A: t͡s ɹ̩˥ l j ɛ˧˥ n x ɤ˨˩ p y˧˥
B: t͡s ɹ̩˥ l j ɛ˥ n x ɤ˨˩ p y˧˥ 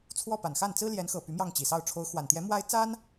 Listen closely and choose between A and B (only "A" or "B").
A